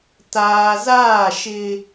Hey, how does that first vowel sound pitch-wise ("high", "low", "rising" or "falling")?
low